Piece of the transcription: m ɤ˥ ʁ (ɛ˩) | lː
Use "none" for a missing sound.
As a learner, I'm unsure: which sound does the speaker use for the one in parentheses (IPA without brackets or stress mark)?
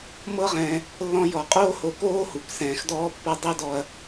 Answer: ɛ̃˩